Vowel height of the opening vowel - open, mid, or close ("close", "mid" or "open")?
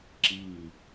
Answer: close